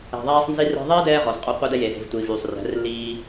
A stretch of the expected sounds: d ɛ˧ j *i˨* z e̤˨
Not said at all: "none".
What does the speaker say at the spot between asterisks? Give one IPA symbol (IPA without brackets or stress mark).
e˨